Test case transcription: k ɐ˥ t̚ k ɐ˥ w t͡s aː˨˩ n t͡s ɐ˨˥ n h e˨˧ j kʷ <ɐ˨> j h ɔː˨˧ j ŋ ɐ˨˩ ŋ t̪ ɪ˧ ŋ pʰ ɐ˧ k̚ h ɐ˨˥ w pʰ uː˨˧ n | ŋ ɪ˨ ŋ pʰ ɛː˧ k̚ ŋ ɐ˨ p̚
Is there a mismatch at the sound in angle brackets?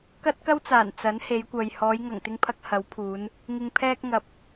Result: no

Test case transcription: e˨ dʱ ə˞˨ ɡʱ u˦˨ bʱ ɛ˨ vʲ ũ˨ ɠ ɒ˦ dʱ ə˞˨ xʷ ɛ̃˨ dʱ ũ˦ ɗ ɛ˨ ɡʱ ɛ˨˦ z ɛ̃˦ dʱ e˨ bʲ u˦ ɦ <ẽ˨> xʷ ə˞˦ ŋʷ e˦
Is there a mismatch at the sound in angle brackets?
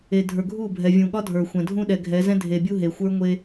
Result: yes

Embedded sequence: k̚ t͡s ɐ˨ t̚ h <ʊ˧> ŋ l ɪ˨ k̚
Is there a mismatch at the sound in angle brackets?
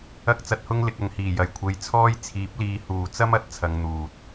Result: no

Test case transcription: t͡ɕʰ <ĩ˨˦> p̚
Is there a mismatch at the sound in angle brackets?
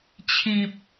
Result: yes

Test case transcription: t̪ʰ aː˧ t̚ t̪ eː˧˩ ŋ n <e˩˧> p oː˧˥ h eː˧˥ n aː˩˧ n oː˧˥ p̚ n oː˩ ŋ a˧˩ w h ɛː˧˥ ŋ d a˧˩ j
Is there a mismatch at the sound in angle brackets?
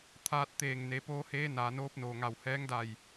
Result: no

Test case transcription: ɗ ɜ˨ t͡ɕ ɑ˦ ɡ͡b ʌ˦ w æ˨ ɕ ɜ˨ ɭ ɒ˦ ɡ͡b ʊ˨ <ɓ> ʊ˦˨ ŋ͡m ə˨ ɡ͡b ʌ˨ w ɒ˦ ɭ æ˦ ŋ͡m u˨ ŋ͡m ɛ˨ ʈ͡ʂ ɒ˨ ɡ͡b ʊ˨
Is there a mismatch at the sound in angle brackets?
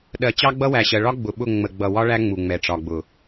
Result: no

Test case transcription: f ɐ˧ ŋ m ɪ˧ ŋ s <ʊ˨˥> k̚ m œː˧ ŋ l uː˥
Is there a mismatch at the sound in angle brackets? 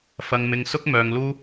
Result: yes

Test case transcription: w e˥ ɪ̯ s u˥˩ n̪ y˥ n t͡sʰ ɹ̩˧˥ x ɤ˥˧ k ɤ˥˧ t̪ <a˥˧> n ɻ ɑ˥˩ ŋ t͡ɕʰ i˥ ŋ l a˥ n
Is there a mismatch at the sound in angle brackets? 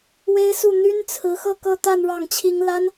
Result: no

